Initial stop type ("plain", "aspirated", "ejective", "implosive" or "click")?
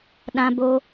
implosive